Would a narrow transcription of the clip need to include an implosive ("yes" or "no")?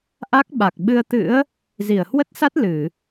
yes